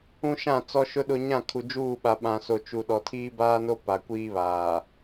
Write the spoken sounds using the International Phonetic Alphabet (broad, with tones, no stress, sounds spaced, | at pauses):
ũ˦ ʃ ã˦˨ t͡s ɔ˦ ʃ ʊ˦ ɗ ʊ˦ ɲ ã˦˨ kʰ u˨ d͡ʒ uː˦˨ ɓ a˨ ɓ ã˨ s o˨ t͡ʃ u˨ ɗ ɔ˨ tʰ iː˦ b aː˦ n o˦ p a˨ kʷ iː˦ β aː˨